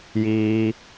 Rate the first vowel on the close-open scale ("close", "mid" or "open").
close